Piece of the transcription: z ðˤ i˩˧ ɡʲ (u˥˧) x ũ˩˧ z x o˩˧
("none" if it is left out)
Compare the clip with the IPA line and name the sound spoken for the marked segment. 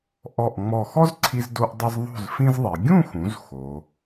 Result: ũ˥˧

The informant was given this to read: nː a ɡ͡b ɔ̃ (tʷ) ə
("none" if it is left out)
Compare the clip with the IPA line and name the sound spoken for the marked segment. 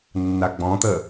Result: t̪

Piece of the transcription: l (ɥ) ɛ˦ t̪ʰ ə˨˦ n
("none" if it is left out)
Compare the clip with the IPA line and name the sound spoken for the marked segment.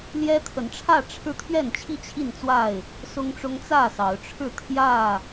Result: j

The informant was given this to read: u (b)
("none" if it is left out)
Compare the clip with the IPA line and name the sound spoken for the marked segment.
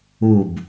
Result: b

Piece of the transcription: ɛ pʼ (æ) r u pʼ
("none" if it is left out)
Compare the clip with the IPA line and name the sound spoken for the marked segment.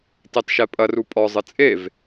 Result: ɐ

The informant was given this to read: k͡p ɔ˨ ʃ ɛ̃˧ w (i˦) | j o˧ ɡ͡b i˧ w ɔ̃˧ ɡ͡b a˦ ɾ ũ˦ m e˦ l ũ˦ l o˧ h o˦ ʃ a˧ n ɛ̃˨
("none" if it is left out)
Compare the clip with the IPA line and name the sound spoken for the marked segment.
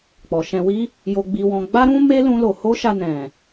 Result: i˦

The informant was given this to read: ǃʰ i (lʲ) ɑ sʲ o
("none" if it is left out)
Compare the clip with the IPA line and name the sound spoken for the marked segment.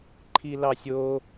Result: l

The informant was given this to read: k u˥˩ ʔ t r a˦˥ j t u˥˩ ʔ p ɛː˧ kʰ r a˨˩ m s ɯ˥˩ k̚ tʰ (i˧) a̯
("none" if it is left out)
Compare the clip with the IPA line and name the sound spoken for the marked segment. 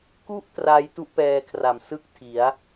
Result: i˩˦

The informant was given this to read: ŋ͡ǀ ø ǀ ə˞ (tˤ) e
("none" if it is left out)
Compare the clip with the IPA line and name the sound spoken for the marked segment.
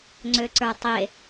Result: tˤ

